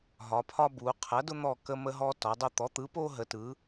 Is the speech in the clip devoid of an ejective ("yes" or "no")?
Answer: yes